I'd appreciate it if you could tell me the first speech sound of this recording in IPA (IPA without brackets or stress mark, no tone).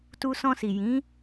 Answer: t